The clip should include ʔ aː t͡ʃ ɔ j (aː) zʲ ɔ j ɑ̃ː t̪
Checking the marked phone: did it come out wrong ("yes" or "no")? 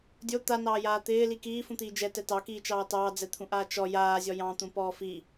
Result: no